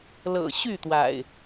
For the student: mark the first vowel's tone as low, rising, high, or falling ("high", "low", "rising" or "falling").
low